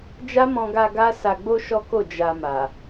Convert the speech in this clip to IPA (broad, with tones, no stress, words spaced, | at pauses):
d͡ʒa˦mɔ̃˧ɡa˧ ɡa˦sa˧ɡ͡bo˦ ʃɔ˦ko˦˨ d͡ʒa˧ma˨